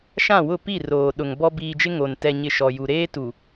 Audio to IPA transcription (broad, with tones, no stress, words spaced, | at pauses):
ʃã˦˨wʊ˦˨ pi˦˨roː˨ ɗʊ˨ŋbɔ˦ biː˨d͡ʒɪ˦ ŋo˨n tɛ˨ɲɪ˨ ʃɔ˨ju˨ ɾeː˦tu˨